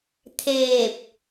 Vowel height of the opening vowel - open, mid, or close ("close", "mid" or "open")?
mid